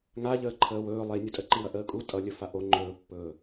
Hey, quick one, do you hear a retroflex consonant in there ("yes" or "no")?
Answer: no